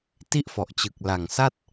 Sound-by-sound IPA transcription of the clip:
t i˥˩ ʔ f ɔ˨˩ ʔ t͡ɕ ɯ˨˩ k̚ l a˨˩ ŋ s a˥˩ t̚

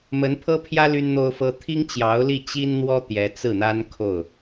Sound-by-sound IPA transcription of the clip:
m ə˧˥ n pʰ ɤ˥ pʰ j ä˥ l y˥ n n̪ o˥ ʊ̯ f ɤ˥ t̪ʰ i˥ ŋ t͡ɕ j ɑ˧˥ ʊ̯ l i˥˩ t͡ɕ i˥ n n̪ w ɔ˥ t̪ j ɛ˧˥ t͡s ɹ̩˥˩ n̪ a˥ n kʰ o˥˩ ʊ̯

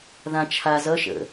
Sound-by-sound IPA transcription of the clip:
ð ã t͡ʃʰ a z ʌ ʃ ə̰

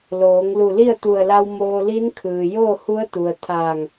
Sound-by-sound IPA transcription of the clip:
l oː˩˧ ŋ l u˧˩ l i˥˨ ə̯ t̪ u˧˩ ə̯ l a˧ w m oː˧ l i˧˥ n kʰ ɯː˩ j oː˥˨ h u˧˥ ə̯ t̪ u˩ ə̯ t̪ʰ aː˧˩ ŋ

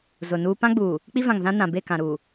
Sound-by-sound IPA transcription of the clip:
z ʊ˨ n uː˦ p ã˦ ɡ͡b uː˨ | k͡p i˦ v ã˨ ŋ z ã˦ n ã˨ b e˦˨ k ã˨ ɾ uː˨

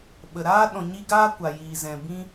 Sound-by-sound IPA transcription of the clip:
ɓ ə˨ ɾ aː˦ ɗ ɔ̃˨ ɲ i˧ ɡ aː˦ kʷ a˨ j iː˨ z ɛ̃˨ b ĩ˦

